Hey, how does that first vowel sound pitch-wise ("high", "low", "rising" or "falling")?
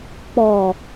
low